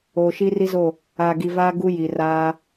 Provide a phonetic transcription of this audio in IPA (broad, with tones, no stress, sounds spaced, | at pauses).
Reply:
oː˨ ʃ iː˦ r i˦ z o˦˨ | aː˨ ɡ i˨ v aː˦ ɡ u˦ j i˨ r aː˦